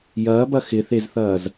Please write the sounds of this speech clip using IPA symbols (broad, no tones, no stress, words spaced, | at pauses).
jɐːbɐ xɪθezθɐːz